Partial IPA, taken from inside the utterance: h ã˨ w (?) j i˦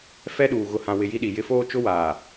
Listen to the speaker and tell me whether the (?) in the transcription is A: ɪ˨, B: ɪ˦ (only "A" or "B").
A